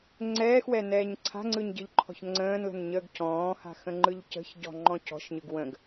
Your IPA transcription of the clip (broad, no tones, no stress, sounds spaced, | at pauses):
ŋ͡ǀ ɛː x w ɛ n ɛː ɲ ǀʰ a̤ ŋ͡ǀ ɯ ɲ ɟ ɯ ʎ ǃʰ ɔ̤ ç ŋ͡ǀ ə̃ː n l ə̤ n ɲ əː ɡ c ɔ̃ː h a̤ x ə̃ ŋ͡ǃ ɯ ʎ c ə̤ ç ɟ ɔ̤ ŋ͡ǃ ɔ̃ c ɔ̤ ʃ ɲ ɯ ɡ w ə̃ ɡ